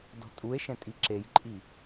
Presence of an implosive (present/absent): absent